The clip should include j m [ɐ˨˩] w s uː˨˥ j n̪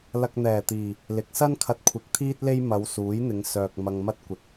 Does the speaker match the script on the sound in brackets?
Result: no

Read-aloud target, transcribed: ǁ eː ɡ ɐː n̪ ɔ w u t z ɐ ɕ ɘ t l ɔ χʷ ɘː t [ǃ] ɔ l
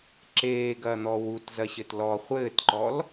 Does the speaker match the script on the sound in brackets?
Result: yes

